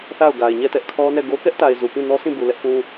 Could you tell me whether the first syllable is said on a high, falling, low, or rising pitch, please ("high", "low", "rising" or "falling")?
falling